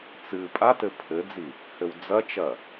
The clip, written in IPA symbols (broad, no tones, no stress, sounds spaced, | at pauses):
t͡s ɨ pʼ a t ɘ pʰ ɘ d͡z i | h ɘ w d͡z ɐ t͡ʃ ɐ